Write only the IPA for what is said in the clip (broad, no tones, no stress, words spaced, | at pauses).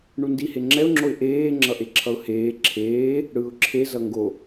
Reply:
ɳundihe ŋ͡ǁɛʊ̯ŋ͡ǁoɪ̯ ʔeː ŋ͡ǁʌʔeǁʰʌʊ̯heː ǁʰeː | ɽɯːʊ̯ǁʰe zʌŋɡo